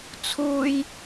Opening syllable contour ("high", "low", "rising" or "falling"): high